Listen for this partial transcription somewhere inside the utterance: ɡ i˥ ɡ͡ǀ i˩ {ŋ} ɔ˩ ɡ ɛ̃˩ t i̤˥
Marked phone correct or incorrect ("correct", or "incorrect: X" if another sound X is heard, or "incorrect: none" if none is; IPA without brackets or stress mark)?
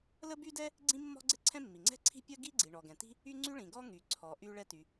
incorrect: ɳ